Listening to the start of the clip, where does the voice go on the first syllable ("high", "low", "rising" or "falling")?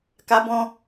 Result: high